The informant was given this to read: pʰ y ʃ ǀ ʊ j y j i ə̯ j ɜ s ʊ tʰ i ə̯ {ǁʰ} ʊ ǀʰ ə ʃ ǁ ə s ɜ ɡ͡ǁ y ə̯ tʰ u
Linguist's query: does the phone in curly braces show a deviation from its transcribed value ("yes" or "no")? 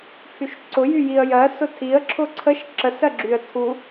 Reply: no